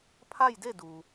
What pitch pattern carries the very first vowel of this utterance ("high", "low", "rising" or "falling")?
falling